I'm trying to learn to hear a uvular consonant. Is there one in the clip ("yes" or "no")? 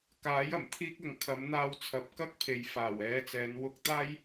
no